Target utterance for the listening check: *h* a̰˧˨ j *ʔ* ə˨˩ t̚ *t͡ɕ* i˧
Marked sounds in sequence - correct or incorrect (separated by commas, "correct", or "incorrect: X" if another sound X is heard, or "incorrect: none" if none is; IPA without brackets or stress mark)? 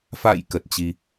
incorrect: f, incorrect: k, correct